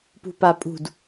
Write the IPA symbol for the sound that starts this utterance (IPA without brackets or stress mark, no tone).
p